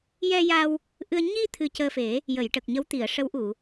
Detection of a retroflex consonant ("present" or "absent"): present